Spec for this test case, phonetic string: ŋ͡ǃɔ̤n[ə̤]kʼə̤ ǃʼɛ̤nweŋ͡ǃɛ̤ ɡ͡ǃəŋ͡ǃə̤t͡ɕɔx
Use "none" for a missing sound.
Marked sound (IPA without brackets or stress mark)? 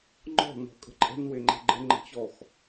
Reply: ɔ̤